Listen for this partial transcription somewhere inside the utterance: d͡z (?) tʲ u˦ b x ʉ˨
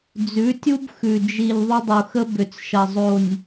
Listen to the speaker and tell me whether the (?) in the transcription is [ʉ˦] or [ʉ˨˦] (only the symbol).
ʉ˨˦